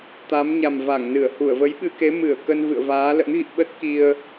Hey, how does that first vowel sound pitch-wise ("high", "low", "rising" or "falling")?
rising